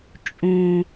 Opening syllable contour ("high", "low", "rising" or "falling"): low